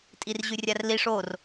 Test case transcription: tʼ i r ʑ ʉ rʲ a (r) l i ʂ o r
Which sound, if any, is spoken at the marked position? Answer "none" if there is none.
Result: r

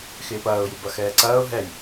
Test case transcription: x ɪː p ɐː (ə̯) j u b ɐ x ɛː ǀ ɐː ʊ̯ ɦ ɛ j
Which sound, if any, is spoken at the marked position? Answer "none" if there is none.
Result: ʊ̯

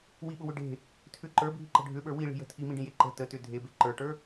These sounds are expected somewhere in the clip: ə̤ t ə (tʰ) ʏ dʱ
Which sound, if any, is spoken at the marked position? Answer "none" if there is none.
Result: t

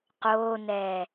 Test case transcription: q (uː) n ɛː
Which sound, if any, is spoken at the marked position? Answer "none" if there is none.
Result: oː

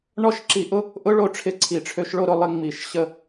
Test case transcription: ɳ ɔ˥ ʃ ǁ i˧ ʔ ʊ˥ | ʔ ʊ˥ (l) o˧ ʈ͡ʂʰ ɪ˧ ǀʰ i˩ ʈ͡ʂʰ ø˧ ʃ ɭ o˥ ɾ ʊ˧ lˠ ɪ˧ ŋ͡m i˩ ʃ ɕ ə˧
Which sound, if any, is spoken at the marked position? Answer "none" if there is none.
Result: ɭ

